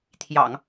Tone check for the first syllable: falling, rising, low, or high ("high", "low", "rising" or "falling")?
low